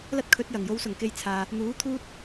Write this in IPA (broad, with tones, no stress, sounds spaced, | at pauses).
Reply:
l ɐ˥ t̚ kʰ ɵ˨˥ t̚ j ɐ˨˩ ŋ j o˨˧ w s ʊ˨˩ ŋ k e˧ j t͡sʰ aː˧ | n̪ uː˨˥ t̪ʰ uː˥ t̚